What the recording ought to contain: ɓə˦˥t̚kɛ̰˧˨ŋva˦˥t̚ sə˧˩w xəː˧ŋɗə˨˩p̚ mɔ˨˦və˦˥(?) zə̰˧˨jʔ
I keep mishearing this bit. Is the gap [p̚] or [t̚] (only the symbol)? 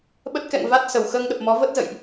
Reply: t̚